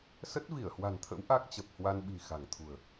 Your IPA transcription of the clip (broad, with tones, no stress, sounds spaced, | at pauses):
s ə˦˥ t̚ v i˧˩ ə̯ h w a̤˨˩ n t̪ʰ ə̰˧˥ w ʔ a˦˥ k̚ t͡ɕ ə˨˩ p̚ h w a˧ n ɓ i̤˨˩ x a̤˨˩ ŋ t̪ʰ ṳ˨˩ ə̯